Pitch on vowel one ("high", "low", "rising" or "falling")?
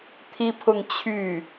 high